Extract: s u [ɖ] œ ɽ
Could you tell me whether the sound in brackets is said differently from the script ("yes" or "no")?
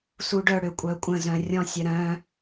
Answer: no